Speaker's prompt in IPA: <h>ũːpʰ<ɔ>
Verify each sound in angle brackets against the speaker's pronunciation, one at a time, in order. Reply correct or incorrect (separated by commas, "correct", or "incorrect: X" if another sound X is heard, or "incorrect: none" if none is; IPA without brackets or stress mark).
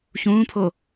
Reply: incorrect: ç, incorrect: o